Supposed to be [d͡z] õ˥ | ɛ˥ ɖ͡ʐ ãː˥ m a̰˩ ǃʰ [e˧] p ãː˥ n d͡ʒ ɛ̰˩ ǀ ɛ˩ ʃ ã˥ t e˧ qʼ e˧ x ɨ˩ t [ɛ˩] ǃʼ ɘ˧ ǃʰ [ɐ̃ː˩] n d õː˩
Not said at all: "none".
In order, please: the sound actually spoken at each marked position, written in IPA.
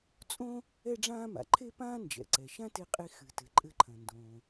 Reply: t͡sʼ, e˥, ɘ˩, ɐ̃˩

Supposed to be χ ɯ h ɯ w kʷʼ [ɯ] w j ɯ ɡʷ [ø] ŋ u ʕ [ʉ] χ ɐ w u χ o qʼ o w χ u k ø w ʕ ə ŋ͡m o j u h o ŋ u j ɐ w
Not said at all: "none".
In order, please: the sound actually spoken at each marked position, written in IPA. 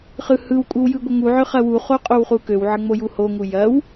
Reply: ɯ, ə, ø

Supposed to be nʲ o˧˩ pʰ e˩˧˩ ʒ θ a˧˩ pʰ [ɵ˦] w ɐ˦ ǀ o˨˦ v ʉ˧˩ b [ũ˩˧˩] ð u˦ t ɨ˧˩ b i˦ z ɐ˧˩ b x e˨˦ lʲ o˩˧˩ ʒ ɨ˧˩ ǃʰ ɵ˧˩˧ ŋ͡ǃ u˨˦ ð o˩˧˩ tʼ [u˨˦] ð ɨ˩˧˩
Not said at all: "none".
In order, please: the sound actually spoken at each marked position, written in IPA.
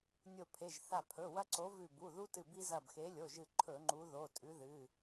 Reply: ɵ˩˧˩, u˩˧˩, ʉ˨˦

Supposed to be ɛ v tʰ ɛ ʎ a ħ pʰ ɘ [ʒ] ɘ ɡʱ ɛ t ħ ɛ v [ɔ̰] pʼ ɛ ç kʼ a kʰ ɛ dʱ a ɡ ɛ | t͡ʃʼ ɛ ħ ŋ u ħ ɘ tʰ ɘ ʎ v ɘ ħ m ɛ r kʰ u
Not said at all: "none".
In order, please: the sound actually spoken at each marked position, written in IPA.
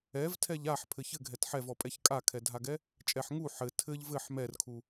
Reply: ç, ɔ

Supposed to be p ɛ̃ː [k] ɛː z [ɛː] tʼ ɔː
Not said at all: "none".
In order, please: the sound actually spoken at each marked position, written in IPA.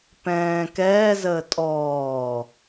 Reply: k, əː

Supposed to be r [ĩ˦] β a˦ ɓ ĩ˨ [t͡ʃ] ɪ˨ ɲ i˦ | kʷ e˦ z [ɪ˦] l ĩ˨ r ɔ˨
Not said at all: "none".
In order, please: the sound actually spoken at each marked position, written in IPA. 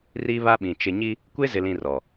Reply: i˦, t͡ʃ, ɪ˨

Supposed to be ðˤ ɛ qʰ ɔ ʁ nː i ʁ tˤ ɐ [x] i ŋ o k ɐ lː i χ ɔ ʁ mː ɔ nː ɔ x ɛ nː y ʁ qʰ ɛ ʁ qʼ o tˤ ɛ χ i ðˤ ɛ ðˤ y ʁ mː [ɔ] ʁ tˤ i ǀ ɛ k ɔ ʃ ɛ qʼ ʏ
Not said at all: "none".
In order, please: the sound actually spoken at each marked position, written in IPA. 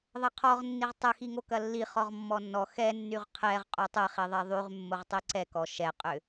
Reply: x, o

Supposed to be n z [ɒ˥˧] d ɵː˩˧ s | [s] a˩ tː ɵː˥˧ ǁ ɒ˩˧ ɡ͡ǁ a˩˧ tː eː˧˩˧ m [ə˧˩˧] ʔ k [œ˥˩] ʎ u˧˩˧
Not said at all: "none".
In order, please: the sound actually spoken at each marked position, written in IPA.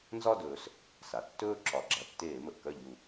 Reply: ɒ˥˧, s, ə˩, œ˥˩

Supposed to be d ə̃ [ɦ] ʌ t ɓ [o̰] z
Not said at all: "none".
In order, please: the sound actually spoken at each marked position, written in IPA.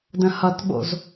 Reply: h, o̰

